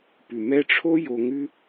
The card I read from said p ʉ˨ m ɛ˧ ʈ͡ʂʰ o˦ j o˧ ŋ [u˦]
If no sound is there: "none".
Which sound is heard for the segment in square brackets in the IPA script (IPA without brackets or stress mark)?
ʉ˦